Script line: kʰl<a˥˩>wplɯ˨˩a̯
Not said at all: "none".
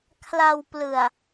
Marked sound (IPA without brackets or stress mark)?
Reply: a˧